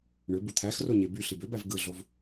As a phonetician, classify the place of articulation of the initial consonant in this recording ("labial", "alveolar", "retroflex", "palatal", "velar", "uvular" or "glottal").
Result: retroflex